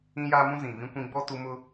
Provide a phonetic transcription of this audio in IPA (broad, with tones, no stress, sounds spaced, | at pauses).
ĩ˦ j aː˦ m ũ˦ z ĩ˨ v ĩ˦ kʷ ĩ˦ ɡ͡b ɔ˦ t u˦ m ʊ˦